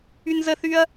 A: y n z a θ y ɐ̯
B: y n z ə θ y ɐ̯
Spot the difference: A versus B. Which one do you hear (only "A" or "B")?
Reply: B